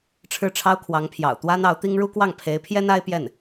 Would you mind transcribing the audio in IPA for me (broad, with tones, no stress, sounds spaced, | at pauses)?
ʈ͡ʂʰ ɻ̩˥˩ ʈ͡ʂʰ ɑ˥ ʊ̯ kʰ w ɑ˧˥ ŋ pʰ j ɑ̰˨˩ ʊ̯ t̪ w a˥ n ɑ˧˥ ʊ̯ t̪ i˥ ŋ ɻ u˥ k w ɑ˥˩ ŋ pʰ e˧˥ ɪ̯ pʰ j ɛ˥ n a˥ ɪ̯ p j ɛ˥˩ n